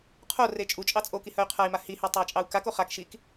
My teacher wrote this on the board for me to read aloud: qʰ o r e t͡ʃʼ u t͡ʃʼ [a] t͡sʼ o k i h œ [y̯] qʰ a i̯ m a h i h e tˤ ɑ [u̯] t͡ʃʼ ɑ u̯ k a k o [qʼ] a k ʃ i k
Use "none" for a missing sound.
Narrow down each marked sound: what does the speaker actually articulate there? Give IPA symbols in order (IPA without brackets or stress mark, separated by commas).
ɑ, y̯, i̯, χ